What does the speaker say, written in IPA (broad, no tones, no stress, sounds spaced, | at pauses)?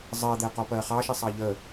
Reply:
zˤ ɜ d̪ ɛ q ɔ p ɜ χ ɑ ʃ i sˤ ɑ ʎ ə